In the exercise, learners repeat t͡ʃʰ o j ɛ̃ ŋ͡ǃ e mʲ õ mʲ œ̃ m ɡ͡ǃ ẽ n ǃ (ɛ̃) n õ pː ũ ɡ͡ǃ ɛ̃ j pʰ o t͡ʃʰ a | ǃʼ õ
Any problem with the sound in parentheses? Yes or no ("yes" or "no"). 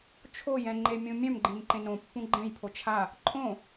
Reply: yes